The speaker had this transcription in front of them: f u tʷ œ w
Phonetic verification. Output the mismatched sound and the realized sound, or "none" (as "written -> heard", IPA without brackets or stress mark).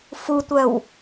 none